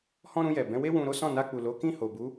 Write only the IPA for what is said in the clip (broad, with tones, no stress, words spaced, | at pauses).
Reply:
hɔ̃˦ɾũ˧jɛ˨ bɛ̃˨˦we˦ wũ˧ ɾo˦sɔ̃˦˨na˧k͡pu˨ lo˨˦kĩ˦˨ho˨bu˨˦